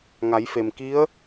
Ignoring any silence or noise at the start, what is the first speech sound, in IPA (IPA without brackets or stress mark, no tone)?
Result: ŋ